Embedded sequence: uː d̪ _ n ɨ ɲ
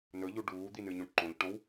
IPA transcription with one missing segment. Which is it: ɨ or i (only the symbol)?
i